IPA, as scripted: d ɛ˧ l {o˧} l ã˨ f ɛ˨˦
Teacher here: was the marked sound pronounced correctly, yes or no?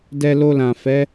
yes